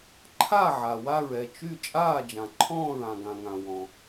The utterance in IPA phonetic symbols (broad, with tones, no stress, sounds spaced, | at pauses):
ǃʰ a˥˩ ʕ a˨ w a˥˩ ɹ ɛ˥˩ t͡ʃ y˥˩ t͡ʃʼ aː˥˩ d͡ʒ ã˨ ǃʰ ɔ̃ː˥˩ ɹ ã˨ ɡ ã˨ ŋ ã˨ w ɔ̃˨